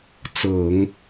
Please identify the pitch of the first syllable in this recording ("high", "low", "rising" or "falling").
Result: low